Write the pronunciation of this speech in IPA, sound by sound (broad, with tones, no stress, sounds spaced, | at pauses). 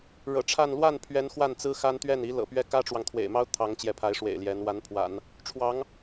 ɻ ɤ̰˨˩ ʈ͡ʂʰ a˥˧ n l w a˥˩ n pʰ ɥ ɛ˧˥ n x w a˥˩ n t͡s ɹ̩˥ x a˥ n t̪ ɥ ɛ˥˩ n i˧˥ l ɤ̰˨˩ p ɥ ɛ˥˩ k ä˥ ʈ͡ʂ w ɑ˨ ŋ t̪ʰ w ḛ˨˩ ɪ̯ m ɑ˥ ʊ̯ t̪ʰ ɑ˧˥ ŋ t͡ɕ j ɛ˧˥ pʰ a˧˥ ɪ̯ ʂ w ḛ˨˩ ɪ̯ l j ɛ˧˥ n w a˧˥ n pʰ w a̰˨˩˦ n | ʈ͡ʂʰ w ɑ˧˥ ŋ